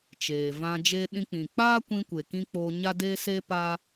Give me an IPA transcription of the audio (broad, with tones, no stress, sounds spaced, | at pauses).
t͡ʃ eː˨ v ã˧ d͡ʒ e˦ ɗ ĩ˧ k͡p ĩ˨ k͡p aː˦ kʷ ĩ˧ kʷ e˨ k ĩ˧ k͡p oː˧ ɲ a˦ d eː˦ s eː˦ p a˦